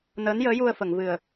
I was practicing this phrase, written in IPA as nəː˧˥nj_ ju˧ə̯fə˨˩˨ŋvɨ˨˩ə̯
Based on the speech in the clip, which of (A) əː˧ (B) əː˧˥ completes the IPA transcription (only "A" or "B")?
B